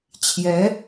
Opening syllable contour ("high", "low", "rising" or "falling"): rising